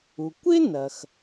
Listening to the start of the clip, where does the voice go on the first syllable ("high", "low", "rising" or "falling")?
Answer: low